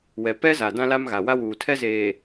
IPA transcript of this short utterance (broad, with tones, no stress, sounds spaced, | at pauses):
w ɛ˨ p ɛ˦ z a˨ d ã˦ l a˦ m ɣ a˨ w a˦ w uː˨ tʰ ɛ˦ z eː˨